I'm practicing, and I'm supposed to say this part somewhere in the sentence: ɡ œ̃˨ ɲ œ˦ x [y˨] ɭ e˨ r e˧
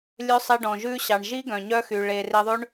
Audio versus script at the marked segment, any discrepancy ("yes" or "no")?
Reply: no